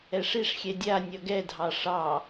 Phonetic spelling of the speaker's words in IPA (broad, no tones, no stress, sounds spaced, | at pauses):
ɛ ʂ i ʂ xʲ ɛ dʲ a nʲ ʌ ɡ ɛ dʱ ɑ ʂ ɑ